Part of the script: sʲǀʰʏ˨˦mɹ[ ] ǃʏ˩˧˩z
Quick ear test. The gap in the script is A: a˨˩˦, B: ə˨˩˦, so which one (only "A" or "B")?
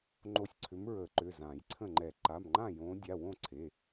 B